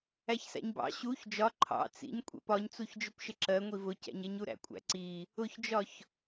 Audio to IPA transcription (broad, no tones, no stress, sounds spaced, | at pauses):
æ ç s æ̰ ɲ b ɑ̰ ɕ u ç d͡ʒ ɒ ǃʰ ɑ̰ t͡s ḭ ɲ kʷʼ ɛ̰ p ɒ ɲ t͡s u ç d͡ʒ ʊ p ʃ ɪ ǁ ɜ ŋʷ i v ʊ c æ̰ ɲ ɛ ɲ u ɾ æ̰ kʷʼ æ̰ ǀ i | ʊ ç d͡ʒ ɒ ç